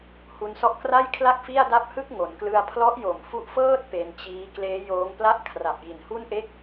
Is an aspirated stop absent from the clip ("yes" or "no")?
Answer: no